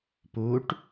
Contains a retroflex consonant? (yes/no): yes